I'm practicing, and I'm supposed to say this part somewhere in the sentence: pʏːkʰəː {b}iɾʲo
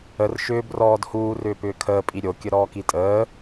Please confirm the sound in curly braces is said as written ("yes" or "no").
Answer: no